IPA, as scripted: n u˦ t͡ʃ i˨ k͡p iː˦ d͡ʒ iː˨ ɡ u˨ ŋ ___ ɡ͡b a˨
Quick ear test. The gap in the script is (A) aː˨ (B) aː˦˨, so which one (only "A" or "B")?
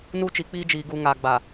A